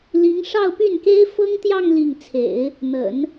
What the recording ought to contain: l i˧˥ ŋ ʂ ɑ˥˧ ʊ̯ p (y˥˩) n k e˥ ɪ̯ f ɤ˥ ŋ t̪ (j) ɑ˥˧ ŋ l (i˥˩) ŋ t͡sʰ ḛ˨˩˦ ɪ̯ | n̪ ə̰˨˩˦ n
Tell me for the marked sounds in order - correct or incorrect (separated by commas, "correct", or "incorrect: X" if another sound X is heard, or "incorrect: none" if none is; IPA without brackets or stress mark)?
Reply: correct, correct, correct